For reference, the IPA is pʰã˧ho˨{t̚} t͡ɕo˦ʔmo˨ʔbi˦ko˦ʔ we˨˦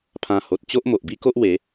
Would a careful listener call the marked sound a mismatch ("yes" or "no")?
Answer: no